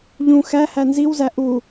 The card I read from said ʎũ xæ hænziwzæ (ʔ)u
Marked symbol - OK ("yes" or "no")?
yes